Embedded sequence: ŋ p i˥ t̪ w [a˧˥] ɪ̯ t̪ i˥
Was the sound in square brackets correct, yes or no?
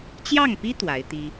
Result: yes